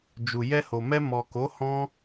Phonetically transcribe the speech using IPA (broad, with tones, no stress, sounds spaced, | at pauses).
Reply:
d͡ʒ u˨ j ɛ˧ h o˨ m ɛ˧ m ɔ˨ k o˨˦ h ɔ̃˦